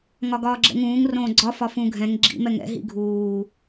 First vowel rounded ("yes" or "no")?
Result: yes